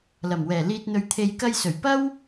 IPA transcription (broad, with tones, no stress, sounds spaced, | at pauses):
l ɐ˨˩ m w ɛː˨˩ l iː˨ t̚ n̪ ɵ˨ ɥ t̪ʰ e˨ j k ɐ˧ j s ɵ˨˩ ɥ p ɐ˥ w